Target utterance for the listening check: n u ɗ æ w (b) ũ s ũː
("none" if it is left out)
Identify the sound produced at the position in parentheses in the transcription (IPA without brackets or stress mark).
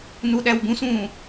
b